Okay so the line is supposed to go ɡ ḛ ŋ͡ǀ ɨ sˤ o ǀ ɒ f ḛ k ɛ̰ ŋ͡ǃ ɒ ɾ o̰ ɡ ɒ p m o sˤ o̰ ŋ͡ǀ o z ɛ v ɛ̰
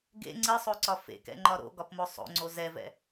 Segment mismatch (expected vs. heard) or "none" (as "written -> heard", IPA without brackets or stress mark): none